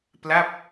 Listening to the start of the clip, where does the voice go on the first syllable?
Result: falling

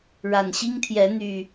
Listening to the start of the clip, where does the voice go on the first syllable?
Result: low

